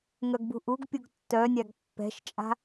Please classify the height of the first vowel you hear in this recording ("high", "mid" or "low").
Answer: mid